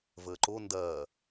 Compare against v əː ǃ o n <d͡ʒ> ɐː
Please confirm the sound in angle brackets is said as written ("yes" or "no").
no